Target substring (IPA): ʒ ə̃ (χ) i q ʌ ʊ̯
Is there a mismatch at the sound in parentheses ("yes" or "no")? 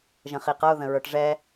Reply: no